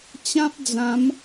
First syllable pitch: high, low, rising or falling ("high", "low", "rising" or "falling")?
high